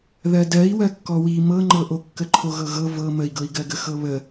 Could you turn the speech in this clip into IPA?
ðɜdɜi̯ wɜkːɔwi mɤŋ͡ǃɤʔo kːəǃʰoɣɤɣɤ vɤ məi̯ɡɤi̯ɡɜɡə xɤβə

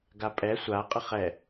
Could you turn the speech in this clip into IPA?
ɡapʼɛ sʷa qʼəχɛ

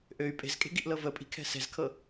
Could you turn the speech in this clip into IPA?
ʔøy̯ pʼe̤zkʼe̤ɡiʔlɤ vəpʼi̤kʰɛ̤ sɛ̤zkʰɤ

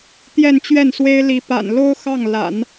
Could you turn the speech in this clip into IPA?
t̪jɛ˥˧nt͡ɕɥɛ˥˩nswe˥ɪ̯li˧˥ pa̰˨˩n lo˥ʊ̯ xɑ˥˩ŋ la̰˨˩˦n

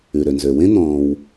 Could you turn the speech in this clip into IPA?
ʉ˩ɾø˩nzø˩ wẽ˥n̪ɔ̃ː˨w

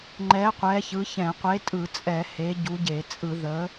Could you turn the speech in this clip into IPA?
ŋ͡ǃɛ˨˥ qʷɛ˨˥çɯ˨˥çɛ̃˧˩˧ qʷe˨˥tʼɯ˧˩˧t͡sʼɛ˧˩˧ he˨˥ɟu˨˥ ɟe˧˩˧ t͡sʼɯ˧˩˧ ðə˨˥

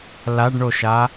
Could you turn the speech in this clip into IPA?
laɖɳoʃa

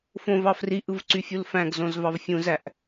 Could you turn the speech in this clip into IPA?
fõvɑ friʔɯvǀyfʲul fæ̃ɡzõzvɑv fʲũzæʔ

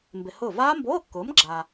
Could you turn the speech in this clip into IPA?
mbɪ˧hʊː˥˨ vaː˦˥mboː˧˥˧kːʊː˨˥m ɡ͡ǁaː˧

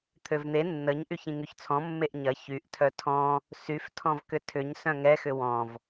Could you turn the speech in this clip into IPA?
t̪ʰøvn̪e nːəɲ ʔyçĩŋyçt͡sʰɔ̃ mːeʔɲɐ çyʔ tʰœtʰɔ̃ | syf tʰɔ̃vkʏtʰʏɲ sœ̃ŋɛ xʏwɔ̃v

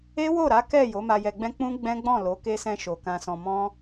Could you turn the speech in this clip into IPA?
e˦wo˦˨ɾa˨˦ kɛ˦˨ jo˨˦ma˧jɛ˧ɡ͡bɛ̃˦ k͡pũ˦ ɡ͡bɛ̃˦ɡ͡bɔ̃˦˨lo˨˦ ke˧sɛ̃˧ ʃo˨kã˧sɔ̃˧ mɔ̃˦

